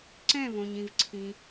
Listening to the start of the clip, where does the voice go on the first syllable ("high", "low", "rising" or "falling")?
falling